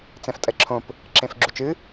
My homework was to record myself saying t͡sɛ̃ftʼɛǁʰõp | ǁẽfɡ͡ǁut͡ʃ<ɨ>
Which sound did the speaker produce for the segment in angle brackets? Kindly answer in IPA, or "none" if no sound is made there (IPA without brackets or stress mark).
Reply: ɨ